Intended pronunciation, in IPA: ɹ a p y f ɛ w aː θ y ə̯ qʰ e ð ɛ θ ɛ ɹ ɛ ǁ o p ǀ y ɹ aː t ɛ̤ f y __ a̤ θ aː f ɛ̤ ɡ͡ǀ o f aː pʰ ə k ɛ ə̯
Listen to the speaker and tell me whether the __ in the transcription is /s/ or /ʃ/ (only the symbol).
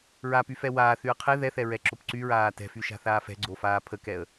ʃ